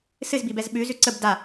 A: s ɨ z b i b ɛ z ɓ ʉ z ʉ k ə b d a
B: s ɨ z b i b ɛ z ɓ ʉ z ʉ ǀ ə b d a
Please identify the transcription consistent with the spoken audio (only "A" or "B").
B